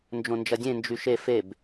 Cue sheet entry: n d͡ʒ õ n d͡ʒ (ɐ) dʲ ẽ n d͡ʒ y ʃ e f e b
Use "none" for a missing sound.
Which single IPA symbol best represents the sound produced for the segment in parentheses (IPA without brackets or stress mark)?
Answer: ɐ